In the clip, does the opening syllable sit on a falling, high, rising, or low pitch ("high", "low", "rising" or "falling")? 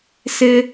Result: high